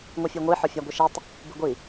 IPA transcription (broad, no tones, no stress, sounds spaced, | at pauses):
ŋʷ i fʲ u ŋʷ i ħ ɔ fʲ a ɡʷ i ʃ i tˤ | b ɨ ɡʷ i